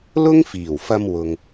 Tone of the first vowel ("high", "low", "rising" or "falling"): high